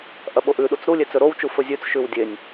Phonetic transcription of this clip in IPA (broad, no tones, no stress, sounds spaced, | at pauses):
ʔ ɐ ɓ o ʔ ʉ ɗ u t͡s ɾ u lʲ e t͡s ɵ ɾ o w t͡ʃ u f ɵ zʲ ʉ t͡s ʃ ʉ w dʲ e nʲ